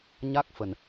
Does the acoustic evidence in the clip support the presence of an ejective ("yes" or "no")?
no